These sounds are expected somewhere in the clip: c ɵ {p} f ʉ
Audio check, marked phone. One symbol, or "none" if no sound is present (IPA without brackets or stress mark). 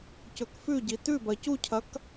k